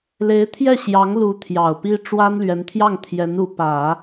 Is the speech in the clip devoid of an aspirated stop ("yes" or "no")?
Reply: no